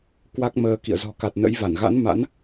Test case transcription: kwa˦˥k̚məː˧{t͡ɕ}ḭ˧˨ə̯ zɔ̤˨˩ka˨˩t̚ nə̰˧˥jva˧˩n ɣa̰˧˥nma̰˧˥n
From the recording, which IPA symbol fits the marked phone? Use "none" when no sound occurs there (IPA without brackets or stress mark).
k